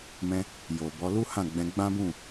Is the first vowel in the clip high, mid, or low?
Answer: mid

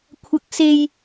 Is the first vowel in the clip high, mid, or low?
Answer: low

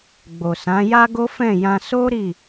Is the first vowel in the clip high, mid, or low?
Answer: mid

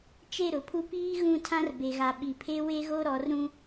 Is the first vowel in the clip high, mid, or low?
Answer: mid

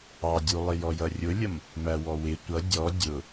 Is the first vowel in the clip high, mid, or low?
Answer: low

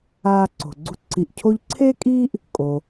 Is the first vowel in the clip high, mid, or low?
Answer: low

